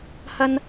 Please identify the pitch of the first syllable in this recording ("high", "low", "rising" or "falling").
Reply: high